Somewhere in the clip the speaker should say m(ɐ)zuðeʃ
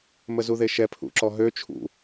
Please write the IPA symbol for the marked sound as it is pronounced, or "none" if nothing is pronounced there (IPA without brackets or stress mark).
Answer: ə